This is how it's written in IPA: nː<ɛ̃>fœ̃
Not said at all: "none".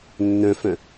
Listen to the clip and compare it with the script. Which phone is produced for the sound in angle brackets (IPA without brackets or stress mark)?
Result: œ̃